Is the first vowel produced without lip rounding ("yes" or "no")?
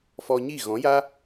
no